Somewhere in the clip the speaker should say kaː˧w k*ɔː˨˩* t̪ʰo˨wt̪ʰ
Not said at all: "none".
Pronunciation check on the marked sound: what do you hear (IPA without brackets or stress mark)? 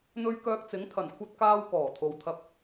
ɔː˨˩